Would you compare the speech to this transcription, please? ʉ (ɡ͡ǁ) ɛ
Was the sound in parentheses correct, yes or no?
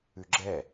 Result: yes